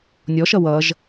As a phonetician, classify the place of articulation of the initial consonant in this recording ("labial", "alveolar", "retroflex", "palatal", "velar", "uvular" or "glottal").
alveolar